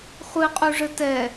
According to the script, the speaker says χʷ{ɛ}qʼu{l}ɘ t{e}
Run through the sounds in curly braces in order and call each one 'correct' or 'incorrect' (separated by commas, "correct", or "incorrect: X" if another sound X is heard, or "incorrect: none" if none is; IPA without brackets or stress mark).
incorrect: ɨ, incorrect: ʐ, incorrect: ɛ